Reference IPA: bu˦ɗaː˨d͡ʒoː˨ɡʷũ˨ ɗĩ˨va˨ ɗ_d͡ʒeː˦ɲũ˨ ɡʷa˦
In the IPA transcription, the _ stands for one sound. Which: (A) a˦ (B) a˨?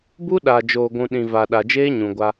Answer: B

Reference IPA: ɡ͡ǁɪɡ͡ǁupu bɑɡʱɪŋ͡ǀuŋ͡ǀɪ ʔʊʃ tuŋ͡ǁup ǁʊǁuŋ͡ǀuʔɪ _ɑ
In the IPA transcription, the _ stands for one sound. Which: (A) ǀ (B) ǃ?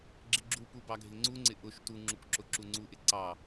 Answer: A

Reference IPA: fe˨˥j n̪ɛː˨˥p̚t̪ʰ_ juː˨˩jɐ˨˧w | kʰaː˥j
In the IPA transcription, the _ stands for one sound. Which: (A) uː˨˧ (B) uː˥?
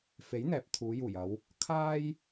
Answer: A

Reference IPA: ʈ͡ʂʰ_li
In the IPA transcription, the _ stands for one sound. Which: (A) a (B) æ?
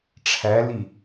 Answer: B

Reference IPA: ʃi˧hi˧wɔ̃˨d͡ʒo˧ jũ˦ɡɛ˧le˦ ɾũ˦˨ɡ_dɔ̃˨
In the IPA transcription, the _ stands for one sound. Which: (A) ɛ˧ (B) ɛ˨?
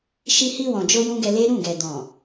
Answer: B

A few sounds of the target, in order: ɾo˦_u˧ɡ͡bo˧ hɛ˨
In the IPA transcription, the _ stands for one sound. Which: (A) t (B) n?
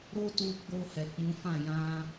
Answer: A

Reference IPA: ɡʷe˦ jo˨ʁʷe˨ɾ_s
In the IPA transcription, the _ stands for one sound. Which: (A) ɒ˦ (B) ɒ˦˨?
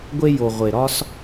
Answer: A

